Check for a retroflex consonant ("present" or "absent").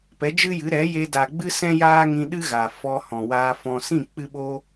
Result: absent